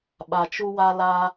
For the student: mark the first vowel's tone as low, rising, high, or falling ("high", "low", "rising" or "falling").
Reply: low